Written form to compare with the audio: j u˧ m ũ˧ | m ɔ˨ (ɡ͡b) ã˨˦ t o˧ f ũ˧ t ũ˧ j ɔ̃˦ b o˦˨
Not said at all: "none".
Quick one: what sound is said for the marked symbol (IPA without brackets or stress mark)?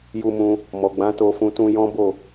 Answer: ɡ͡b